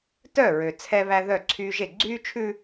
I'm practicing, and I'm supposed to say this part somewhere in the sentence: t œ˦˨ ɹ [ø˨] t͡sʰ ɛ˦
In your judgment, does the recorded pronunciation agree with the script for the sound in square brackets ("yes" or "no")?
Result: yes